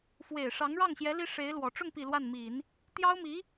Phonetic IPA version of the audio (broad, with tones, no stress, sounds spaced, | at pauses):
f w e˨˩ ɪ̯ ʂ ɑ˧˥ ŋ ɻ ɑ˥˩ ŋ ɕ j ɛ˧˥ l i˥ ʂ e˧˥ ɪ̯ l w ɔ˨˩ ʈ͡ʂ ʊ˥˩ ŋ p i˨˩ l w a˥˩ n m i˨˩˦ n | t̪ j ɑ˥ ʊ̯ m i˧˥